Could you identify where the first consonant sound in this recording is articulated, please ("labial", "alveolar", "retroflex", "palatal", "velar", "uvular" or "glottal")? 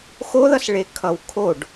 velar